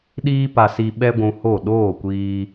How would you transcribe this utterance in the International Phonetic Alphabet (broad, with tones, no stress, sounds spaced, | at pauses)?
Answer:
ɗ iː˦ p a˧ s i˧ ɓ ɛ˦ ɡʷ ũ˧ h o˦˨ ɗ oː˦˨ kʷ iː˧